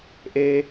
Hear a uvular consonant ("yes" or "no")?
no